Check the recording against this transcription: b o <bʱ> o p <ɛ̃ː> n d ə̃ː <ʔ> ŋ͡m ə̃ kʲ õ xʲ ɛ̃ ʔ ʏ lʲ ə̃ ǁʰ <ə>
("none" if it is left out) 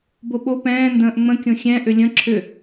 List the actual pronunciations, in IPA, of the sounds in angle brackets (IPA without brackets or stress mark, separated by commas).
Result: ɓ, ɛ̃ː, ʔ, ʏ